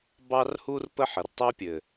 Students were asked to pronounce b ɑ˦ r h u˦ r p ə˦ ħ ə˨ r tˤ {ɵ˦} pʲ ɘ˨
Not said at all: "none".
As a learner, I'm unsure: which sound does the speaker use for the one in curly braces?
ø˦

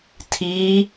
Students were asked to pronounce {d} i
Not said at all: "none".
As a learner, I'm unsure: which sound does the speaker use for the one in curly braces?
tʰ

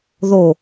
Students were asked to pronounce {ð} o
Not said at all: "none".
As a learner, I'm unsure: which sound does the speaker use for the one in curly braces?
ð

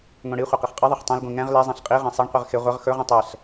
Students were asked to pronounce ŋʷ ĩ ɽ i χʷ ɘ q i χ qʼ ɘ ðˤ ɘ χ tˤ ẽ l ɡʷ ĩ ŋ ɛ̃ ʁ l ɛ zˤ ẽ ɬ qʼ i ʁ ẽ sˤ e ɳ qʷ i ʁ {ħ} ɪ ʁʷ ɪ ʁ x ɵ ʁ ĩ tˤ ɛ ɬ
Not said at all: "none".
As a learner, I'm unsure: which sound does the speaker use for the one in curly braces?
x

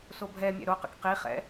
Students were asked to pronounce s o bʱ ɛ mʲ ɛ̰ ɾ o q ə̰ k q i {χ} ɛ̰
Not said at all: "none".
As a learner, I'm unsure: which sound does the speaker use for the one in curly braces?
χ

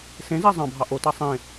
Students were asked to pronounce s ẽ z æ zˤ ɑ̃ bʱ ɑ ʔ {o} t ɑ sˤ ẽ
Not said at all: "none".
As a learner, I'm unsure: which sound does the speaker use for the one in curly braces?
o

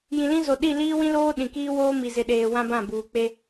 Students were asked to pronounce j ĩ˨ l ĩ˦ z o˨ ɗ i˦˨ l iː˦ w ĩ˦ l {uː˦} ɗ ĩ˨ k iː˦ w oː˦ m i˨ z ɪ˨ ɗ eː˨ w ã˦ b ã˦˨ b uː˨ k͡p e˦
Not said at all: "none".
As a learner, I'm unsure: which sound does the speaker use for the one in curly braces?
oː˦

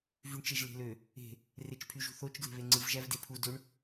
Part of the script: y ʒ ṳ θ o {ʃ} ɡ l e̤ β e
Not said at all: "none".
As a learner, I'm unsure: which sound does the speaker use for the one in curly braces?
t͡ʃ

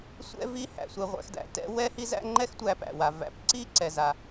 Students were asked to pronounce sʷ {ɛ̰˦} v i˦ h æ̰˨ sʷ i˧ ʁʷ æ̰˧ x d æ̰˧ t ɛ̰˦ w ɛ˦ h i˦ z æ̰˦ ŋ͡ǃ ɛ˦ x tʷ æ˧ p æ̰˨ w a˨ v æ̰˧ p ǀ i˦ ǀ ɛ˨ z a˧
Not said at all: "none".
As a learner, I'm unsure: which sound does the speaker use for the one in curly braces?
ɛ̰˦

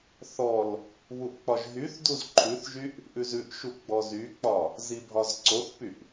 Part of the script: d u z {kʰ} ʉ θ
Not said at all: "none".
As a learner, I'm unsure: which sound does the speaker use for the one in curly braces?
ǃʰ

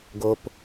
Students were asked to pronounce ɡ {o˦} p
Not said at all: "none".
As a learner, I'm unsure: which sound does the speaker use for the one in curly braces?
o˦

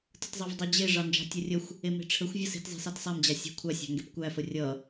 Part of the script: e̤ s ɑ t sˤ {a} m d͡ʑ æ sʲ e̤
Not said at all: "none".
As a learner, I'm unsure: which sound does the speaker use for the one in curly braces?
æ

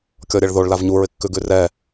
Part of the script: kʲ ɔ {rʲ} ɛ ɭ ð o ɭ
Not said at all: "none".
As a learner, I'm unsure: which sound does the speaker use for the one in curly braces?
ɾʲ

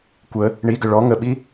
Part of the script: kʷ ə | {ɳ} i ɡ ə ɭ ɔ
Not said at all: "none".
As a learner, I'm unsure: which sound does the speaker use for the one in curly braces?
ɳ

